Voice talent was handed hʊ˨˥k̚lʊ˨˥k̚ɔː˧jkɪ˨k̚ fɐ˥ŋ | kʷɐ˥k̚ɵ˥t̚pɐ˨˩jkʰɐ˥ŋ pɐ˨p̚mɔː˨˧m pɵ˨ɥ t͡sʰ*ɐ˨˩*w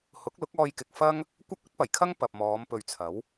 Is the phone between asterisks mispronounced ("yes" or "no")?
yes